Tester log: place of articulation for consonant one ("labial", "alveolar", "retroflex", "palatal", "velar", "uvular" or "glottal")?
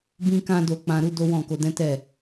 labial